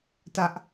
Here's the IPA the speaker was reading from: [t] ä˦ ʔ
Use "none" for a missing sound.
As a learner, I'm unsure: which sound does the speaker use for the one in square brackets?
t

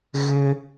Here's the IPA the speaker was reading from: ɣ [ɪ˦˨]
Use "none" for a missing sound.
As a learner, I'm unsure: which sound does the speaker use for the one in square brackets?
ɪ˦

